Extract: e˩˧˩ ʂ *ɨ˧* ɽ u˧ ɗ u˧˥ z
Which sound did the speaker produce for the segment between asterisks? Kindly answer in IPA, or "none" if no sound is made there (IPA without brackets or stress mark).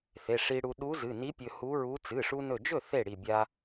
i˧